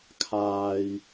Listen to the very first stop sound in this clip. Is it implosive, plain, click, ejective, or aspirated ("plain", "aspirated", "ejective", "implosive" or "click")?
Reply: aspirated